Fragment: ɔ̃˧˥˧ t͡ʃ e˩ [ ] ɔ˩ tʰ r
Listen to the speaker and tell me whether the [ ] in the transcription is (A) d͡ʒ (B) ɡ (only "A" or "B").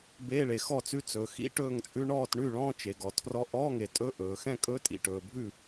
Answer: B